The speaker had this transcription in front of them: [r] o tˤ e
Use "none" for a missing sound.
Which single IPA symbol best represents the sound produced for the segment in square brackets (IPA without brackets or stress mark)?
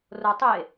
r